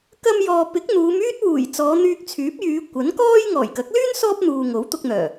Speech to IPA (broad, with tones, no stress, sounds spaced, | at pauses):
k ɐ˧ m j ɔː˨ p ɪ˨˥ k̚ n̪ uː˨˧ m yː˥ t̚ w uː˨˩ j t͡s ɔː˨˧ n̪ yː˧ k̚ t͡sʰ yː˨˥ p̚ j yː˨˧ kʷ ɐ˨˥ n k ɔː˥ j ŋ ɔː˨˩ j k ɐ˨˥ k̚ l yː˥ n s ɔː˥ p̚ n̪ uː˨ ŋ o˨˥ w t̪ ʊ˧ k̚ n̪ œː˨˩